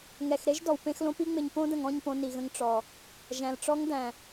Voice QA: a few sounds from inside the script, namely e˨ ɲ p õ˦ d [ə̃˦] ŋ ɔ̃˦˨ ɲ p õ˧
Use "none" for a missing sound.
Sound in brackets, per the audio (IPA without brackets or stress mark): ə̃˨